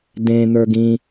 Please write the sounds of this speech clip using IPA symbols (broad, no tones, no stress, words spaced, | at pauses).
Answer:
dẽ n̪ə˞ɡĩ